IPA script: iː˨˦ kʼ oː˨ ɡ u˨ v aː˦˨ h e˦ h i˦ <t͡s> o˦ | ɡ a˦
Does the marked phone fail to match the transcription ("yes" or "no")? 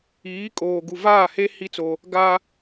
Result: no